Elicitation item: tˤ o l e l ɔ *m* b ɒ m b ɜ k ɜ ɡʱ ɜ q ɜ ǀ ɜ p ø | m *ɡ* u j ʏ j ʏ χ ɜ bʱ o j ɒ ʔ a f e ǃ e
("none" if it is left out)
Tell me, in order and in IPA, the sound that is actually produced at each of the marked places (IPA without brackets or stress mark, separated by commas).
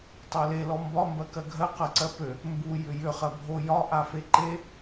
m, b